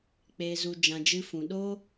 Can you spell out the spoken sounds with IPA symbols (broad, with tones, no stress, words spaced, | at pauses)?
k͡peː˨ zu˨d͡ʒã˨ d͡ʒɨ˧fũ˨ ɗo˦